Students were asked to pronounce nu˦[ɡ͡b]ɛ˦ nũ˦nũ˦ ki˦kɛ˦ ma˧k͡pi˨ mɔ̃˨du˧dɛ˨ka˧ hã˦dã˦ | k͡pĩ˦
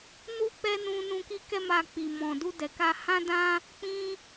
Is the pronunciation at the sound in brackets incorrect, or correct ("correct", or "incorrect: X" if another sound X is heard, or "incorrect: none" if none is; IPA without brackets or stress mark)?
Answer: incorrect: k͡p